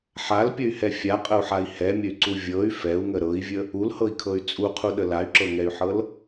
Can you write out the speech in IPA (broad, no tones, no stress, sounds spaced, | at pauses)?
ħ a l pʲ ə y̯ h ɛ fʲ a qʼ ə u̯ ħ a i̯ h ɛ mʲ ə y̯ ǀ u vʲ ɤ y̯ f ɛ u̯ ŋ ə ɾ ɤ i̯ vʲ ə | u l h ɤ i̯ kʰ ɤ y̯ t͡sʼ u qʰ u ɗ ə l a y̯ ǁ ɤ ŋ ɛ y̯ ħ ɤ l